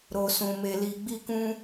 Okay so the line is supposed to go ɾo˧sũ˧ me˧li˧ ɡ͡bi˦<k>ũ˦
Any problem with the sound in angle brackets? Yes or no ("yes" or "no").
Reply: no